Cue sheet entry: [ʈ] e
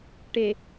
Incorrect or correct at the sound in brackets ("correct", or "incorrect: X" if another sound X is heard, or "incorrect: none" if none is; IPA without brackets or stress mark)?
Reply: correct